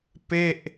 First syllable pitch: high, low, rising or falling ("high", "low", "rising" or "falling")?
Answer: falling